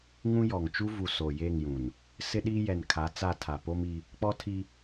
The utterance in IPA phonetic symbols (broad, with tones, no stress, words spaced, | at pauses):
ŋũ˦jɔ˨ŋ t͡ʃu˦vu˨ so˨je˦˨ŋjũ˨n | sɪ˦ɗi˦jɛ˨nkʰa˨˦ t͡sa˦˨tʰa˨ po˦mi˦ | k͡pɔ˦tʰi˦